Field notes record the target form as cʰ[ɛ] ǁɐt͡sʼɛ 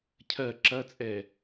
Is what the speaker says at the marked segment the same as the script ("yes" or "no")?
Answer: no